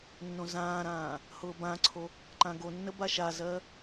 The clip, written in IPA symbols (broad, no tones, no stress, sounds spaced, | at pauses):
nː õ z ãː ɾ ãː | h ʊː b ã ǀʰ o | ǃ ã ɡ o nː ə b a ʃ a z ɜ